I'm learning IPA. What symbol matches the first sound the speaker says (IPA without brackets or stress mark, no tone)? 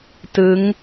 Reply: t